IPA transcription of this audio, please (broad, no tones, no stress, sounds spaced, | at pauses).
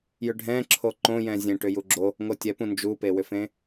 j ʏ ɖʱ ɛ̃ ǁʰ o ǃ õ j ɛ̃ zʲ ẽ ʈ ʏ j u ɡ͡ǁ o | ŋ o tʲ ɛ p ũ n d͡ʒ u p e w ʏ f ẽ